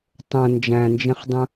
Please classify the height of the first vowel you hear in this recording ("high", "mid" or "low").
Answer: mid